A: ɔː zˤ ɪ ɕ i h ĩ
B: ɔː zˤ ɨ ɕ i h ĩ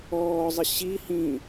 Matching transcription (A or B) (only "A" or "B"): A